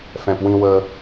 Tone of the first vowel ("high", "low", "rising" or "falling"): low